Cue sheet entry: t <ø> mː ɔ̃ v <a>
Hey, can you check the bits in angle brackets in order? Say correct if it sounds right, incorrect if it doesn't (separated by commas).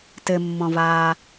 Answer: incorrect, incorrect